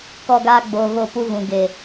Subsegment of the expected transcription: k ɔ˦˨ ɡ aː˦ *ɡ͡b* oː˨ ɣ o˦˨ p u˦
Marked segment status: correct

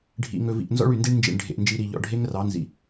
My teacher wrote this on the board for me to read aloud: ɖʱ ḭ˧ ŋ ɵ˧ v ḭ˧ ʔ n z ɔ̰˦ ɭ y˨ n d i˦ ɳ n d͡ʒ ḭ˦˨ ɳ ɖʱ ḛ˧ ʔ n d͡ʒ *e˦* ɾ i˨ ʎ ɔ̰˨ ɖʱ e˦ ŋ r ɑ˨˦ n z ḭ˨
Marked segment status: incorrect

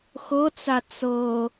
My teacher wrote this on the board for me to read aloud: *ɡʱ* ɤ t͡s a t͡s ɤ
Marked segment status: incorrect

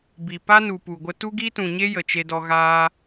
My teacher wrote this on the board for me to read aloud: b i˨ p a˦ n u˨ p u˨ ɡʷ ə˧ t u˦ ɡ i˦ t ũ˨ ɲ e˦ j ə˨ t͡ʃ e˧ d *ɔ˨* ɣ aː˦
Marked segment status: incorrect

